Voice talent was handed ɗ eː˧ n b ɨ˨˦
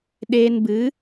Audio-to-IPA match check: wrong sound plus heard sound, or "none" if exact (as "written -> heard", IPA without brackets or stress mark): none